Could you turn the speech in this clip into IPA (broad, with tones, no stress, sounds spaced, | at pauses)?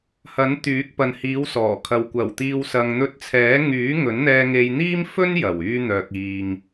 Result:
h ɐ˨˥ n t̪ yː˨˥ k̚ p ɐ˨ n h iː˨˧ w s ɔː˨˩ kʰ ɐ˨ w kʷ ɐ˨˩ w t̪ iː˨ w s ɐ˨ ŋ n̪ ɵ˧ t̚ t͡sʰ ɛː˨˥ ŋ yː˨˥ ŋ ɵ˨˥ n n̪ ɛː˧ ŋ e˧ j n̪ iː˥ m f ɵ˥ n j ɐ˨˩ w yː˧ n̪ œː˨ k̚ iː˨ ŋ